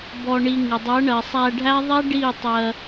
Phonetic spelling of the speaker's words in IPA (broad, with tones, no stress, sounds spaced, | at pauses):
b ɔ˧ ɳ i˧ ŋ ɪ˨ dˤ ɜ˨˦ ɳ ɜ˨ sˤ æ˧ ɖʱ æ˦ ðˤ ɛ˦ ɖ i˦˨ tˤ ɜ˧